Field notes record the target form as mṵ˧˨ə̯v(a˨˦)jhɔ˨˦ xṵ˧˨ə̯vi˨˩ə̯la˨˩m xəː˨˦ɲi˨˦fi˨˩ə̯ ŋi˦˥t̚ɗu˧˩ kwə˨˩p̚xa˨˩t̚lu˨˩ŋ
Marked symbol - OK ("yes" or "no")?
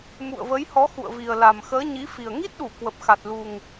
no